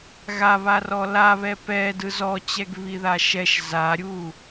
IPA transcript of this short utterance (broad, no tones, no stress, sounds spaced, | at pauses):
ɣ a β a r ɔ l a β ɛ p ɛ d ɯ z ɔ t͡ɕ ɛ ɡ β i ð a ʃ ɛ ʃ z a ɾʲ u